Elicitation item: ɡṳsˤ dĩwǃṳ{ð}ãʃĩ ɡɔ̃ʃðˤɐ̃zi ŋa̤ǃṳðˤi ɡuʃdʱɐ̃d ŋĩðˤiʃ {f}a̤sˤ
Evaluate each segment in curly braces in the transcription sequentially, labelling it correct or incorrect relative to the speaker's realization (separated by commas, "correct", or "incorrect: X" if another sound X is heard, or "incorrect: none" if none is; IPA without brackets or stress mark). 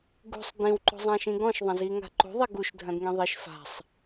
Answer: incorrect: zˤ, correct